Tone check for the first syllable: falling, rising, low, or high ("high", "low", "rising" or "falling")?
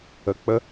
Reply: rising